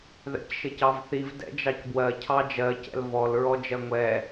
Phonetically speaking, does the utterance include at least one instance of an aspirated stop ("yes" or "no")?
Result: yes